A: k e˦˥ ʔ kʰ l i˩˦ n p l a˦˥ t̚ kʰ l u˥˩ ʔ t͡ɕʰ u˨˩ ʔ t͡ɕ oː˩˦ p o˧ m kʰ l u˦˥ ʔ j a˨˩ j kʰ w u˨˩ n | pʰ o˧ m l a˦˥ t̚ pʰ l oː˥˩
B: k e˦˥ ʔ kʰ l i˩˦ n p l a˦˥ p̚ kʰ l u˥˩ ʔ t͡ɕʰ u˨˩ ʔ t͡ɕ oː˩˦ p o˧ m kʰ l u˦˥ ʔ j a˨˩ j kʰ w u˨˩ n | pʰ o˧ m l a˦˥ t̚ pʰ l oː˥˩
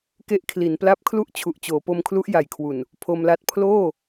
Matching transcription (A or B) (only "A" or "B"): B